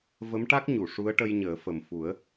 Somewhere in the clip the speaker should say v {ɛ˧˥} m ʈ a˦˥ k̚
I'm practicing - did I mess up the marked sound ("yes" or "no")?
yes